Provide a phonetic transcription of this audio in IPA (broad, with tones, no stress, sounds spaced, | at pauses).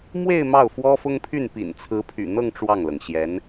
m w e˥˧ ɪ̯ m ɑ˥˩ ʊ̯ f w ɔ˥ f ʊ˥ ŋ pʰ y˥˩ n p ḭ˨˩ n t͡sʰ ɹ̩˧˥ pʰ y̰˨˩ n̪ ɤ˥˧ ŋ ʈ͡ʂ w ɑ˥˩ ŋ l ɤ˩ ŋ ɕ j ɛ˧˥ n